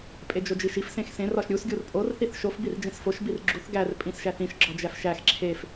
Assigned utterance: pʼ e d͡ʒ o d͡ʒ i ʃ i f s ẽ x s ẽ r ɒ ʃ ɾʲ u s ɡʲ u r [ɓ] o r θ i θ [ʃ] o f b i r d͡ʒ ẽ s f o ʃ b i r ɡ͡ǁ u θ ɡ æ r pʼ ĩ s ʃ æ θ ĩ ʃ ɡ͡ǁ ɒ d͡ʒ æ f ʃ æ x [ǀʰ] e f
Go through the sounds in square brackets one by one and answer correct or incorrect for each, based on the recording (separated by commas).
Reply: incorrect, correct, incorrect